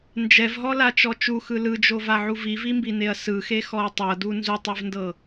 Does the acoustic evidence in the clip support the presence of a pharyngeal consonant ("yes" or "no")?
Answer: yes